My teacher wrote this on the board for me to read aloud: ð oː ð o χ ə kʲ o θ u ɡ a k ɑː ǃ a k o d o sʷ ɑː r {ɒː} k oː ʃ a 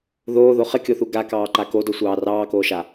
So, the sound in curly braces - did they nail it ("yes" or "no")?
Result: no